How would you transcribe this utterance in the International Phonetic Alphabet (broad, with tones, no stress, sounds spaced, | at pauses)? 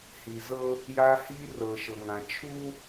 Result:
h i˨ z ɤ˦ | j a˦ h iː˦ r ɤː˨ ʃ ɤ˨ ŋ ã˨ t͡ʃʰ u˦